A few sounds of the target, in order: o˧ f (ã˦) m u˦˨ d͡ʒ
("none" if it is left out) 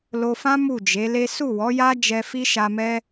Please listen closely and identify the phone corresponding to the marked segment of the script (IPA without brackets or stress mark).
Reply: ã˦